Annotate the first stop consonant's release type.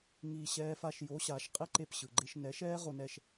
ejective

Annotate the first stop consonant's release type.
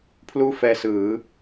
aspirated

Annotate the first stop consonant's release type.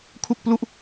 aspirated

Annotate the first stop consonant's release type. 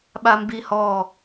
implosive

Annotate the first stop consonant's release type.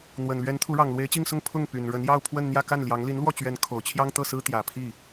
aspirated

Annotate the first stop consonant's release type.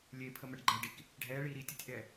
aspirated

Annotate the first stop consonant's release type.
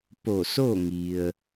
plain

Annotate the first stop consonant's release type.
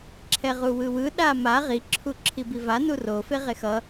click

